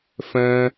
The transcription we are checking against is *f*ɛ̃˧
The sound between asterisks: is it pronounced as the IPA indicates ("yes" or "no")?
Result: yes